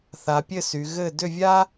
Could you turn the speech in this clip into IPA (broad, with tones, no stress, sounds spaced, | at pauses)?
θ a˩˧ pʲ ɘ˥˨ s y˩˧ ɣ ɘ˥˨ d ʏ˥˨ vʲ a˥